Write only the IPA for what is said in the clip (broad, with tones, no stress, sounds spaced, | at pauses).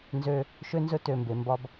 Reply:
n z ø˦ | ʃ ø˦ n z ɵ˦ t ø˦˨ m b e˧ m b ɒ˦ b